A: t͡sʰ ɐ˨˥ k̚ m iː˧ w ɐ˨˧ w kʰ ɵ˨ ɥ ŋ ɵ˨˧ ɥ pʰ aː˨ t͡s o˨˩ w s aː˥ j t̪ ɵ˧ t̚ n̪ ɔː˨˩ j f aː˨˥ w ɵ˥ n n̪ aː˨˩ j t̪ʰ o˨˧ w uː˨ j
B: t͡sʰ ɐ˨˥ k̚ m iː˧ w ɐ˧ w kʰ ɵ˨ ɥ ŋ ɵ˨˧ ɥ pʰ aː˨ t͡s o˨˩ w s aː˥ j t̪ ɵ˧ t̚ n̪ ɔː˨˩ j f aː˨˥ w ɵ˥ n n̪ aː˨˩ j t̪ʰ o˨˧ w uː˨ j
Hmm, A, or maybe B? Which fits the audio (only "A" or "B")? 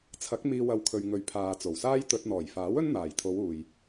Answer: A